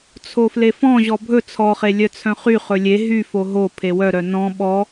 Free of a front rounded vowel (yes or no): no